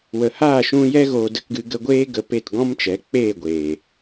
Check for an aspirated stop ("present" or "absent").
absent